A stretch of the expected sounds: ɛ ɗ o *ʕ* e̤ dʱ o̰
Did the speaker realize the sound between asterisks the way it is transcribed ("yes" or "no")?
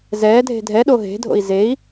no